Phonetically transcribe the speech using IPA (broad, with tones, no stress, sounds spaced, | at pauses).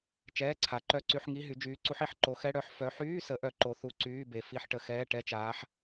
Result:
t͡ʃ ɛː˧˥˧ ǀʰ a˨˦ ǃ œ˧˥˧ ǀ y˧˥˧ ħ ŋ i˧˥˧ ɦ y˨˦ d͡ʒ yː˨˦ ǀ u˨˦ ħ i˨˦ ħ ǃ o˨˦ x ɛ˧˥˧ ɽ œ˧˥˧ ħ f œ˨˦ ħ yː˧˥˧ s ə˨˦ ʔ œ˨˦ ǃ o˨˦ θ u˧˥˧ ǀ yː˧˥˧ b e˨˦ f i˧˥˧ ħ ʈ ə˨˦ x ɛː˧˥˧ ʈ ɛ˧˥˧ t͡ʃ aː˨˦ ħ